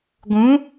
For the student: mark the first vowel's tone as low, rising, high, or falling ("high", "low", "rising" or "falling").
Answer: rising